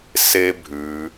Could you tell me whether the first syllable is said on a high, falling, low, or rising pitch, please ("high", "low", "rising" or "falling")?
high